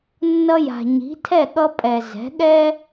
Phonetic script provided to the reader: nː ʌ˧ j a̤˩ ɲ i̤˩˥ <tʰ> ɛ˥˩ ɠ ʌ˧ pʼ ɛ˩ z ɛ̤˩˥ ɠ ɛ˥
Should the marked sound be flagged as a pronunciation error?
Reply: no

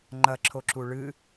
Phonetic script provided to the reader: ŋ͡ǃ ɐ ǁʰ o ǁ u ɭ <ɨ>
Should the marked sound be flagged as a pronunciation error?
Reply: no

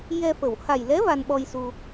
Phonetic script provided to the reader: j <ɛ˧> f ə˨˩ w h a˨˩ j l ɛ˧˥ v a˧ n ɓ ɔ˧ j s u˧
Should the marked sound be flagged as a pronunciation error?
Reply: no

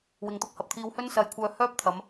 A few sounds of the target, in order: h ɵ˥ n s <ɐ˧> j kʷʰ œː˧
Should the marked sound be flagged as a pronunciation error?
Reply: no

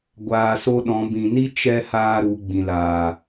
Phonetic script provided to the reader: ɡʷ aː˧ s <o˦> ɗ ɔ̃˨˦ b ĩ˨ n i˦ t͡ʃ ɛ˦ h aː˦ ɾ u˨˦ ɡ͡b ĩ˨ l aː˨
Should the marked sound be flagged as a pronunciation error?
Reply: no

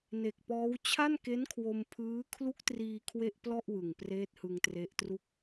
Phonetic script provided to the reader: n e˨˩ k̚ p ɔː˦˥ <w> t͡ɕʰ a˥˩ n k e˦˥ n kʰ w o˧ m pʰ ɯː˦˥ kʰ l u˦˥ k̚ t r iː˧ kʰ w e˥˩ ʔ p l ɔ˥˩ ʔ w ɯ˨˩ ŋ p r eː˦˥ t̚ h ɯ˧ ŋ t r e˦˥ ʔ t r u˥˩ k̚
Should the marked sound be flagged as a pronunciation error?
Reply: no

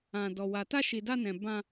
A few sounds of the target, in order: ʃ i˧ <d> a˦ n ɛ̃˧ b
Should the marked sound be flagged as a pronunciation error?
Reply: no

